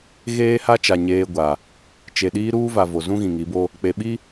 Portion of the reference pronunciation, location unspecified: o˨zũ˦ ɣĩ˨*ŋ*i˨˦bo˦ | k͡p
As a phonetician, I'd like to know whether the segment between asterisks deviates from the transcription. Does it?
no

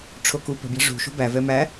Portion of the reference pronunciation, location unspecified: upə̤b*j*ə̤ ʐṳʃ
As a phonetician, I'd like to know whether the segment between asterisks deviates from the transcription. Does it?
no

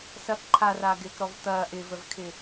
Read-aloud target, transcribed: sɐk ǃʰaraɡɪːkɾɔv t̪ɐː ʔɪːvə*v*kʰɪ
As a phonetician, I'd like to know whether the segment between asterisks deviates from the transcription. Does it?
no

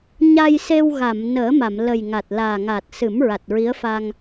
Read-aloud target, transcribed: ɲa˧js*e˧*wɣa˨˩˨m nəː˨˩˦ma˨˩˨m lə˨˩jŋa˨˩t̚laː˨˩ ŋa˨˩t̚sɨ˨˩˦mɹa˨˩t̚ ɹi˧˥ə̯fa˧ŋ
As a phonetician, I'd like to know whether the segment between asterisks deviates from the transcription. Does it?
no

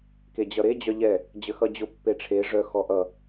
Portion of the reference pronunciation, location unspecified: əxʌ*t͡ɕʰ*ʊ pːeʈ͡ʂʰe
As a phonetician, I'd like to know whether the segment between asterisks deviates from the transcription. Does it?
yes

